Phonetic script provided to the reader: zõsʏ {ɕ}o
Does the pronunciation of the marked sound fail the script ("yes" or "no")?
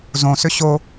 no